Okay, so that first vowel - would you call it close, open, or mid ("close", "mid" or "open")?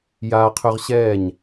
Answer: open